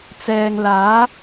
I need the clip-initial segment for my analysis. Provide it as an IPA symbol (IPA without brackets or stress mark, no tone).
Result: t͡s